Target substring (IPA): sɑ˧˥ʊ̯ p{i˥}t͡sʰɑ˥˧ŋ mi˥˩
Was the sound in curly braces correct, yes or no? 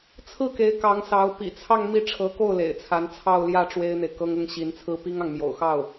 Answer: no